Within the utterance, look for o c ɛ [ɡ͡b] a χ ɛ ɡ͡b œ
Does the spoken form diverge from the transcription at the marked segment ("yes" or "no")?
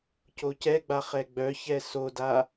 no